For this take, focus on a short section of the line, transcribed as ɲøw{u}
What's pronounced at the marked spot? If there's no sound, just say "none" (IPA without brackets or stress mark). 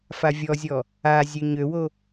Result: o